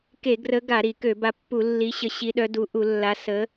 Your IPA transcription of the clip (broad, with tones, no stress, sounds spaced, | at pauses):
k e˧˩˧ ɡ r ə˨˦ ɡ a˧˩˧ ɾ i˧˩˧ k ø˧˩˧ b a˨˦ pː u˧˩˧ lː i˨˦ ɕ ə˨˦ ɕ i˨˦ ɗ œ˨˦ d u˨˦ ʔ u˧˩˧ lː a˨˦ s ə˨˦